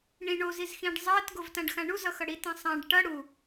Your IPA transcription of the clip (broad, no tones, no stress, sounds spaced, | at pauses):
ɳ ĩ ɳ o z i z x ĩ ɖ zˤ ɜ t ɡ o v t ã ɖ x ã ɳ u z ʌ x ʌ ɽ i t ĩ sˤ ã ɖ ʈ ʌ ɽ u